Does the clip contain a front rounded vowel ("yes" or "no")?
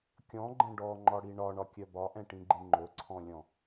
yes